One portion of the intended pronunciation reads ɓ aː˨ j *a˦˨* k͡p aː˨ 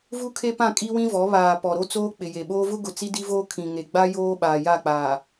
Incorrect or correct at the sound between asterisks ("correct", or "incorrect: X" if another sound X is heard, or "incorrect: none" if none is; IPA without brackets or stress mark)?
correct